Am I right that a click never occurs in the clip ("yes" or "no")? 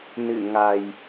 yes